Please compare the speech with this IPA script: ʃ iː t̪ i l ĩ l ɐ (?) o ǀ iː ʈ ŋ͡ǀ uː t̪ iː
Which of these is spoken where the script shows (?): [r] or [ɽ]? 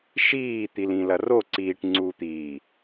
r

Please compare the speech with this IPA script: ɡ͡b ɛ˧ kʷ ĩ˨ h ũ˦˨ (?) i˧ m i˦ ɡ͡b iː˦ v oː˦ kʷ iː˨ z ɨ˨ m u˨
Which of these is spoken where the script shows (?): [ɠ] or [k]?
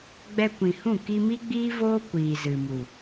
k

